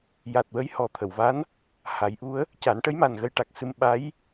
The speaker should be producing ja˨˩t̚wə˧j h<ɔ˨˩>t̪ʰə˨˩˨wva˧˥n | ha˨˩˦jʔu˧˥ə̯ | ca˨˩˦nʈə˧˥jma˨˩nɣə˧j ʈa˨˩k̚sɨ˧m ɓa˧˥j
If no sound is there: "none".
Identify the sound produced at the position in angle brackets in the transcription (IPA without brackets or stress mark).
ɔ˨˩